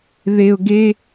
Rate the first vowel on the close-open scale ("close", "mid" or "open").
mid